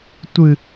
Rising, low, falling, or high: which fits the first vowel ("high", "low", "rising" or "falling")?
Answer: low